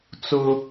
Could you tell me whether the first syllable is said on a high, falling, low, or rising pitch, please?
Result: high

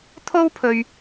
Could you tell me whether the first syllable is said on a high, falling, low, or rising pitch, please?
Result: high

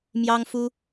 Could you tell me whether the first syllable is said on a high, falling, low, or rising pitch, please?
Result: high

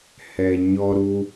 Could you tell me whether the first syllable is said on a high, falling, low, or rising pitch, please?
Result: low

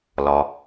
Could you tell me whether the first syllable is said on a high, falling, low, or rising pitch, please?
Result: low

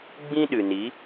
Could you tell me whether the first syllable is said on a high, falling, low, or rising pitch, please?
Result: high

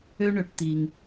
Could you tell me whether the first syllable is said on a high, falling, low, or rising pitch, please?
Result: high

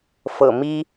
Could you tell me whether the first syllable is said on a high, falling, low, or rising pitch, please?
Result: low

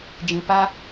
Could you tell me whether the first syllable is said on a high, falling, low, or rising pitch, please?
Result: low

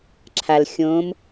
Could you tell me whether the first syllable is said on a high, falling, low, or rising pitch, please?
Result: low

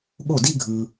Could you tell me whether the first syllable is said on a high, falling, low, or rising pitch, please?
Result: falling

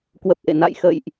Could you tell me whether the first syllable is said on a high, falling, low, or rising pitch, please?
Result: low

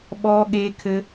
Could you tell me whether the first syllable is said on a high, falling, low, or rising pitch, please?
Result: high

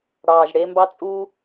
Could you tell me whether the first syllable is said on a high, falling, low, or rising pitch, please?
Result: low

